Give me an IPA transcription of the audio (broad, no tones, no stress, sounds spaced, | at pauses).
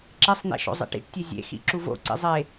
ǁ e sˤ n̪ ḛ ʃ o̰ zˤ ḛ ʈ ḭ ʈ tʲ e zʲ ḛ x ḭ ǁ u v o̰ ǀ ḭ zˤ e